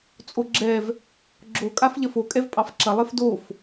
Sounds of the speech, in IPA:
t͡sʼoɡ͡ǁɛv | ɡ͡ǁo kʼafʎɐfo kʼɛvpʼɑfǁɐ lˠefdof

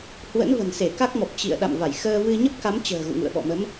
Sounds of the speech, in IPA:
hwə̰˧˥nvə̤˨˩nse˧˩ ka˦˥k̚mɔ˨˩p̚ t͡ɕḭ˧˨ə̯ɗa̰˧˨m va˧˩jxəː˧vɨ˧ ɲə˦˥p̚ka˨˦mt͡ɕə̤ː˨˩ ɣṵ˧˨ŋṵ˧˨ə̯ɓɔ̰˧˨mə˨˦m

